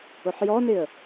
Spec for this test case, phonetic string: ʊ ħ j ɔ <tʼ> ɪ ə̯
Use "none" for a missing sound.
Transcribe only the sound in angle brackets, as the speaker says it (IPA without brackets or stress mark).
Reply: n